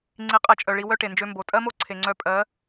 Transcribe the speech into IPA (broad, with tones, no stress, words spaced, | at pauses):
ŋ͡ǀi˧qʼe˧t͡ʃʼœ˨ɭi˧ wœ˦ʈe˨nd͡ʒø˧ mbo˨ tʼɜ˦mo˦ ǀʰe˨ŋ͡ǀœ˧pʼɜ˨˦